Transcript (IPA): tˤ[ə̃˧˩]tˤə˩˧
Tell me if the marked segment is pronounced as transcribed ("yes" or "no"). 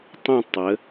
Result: no